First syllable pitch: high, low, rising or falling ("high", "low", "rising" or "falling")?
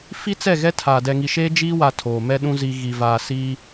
high